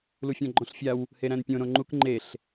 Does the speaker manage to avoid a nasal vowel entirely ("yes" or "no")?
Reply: no